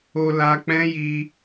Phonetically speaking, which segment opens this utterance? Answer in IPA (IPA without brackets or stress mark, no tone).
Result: o